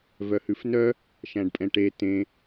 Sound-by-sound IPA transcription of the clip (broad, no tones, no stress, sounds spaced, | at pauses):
v œ h ʉ f n œ | ʃ æ̃ ɖ pʼ ɛ̃ ʈ e t ẽ